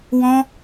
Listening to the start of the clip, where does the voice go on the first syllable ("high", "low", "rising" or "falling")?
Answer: high